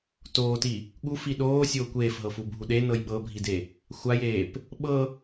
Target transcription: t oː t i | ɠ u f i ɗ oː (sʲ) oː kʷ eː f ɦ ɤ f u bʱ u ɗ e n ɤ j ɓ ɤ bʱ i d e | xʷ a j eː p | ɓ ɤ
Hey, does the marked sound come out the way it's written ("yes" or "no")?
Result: yes